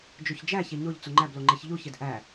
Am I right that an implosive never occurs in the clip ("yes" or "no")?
yes